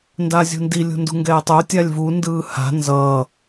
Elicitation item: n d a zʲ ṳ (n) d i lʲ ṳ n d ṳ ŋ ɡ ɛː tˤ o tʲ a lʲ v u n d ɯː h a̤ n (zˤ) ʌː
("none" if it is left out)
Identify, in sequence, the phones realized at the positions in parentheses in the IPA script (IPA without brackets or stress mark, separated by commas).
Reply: n, z